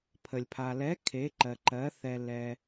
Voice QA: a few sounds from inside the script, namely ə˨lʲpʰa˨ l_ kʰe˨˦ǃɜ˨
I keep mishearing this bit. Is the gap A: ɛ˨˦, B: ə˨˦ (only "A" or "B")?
A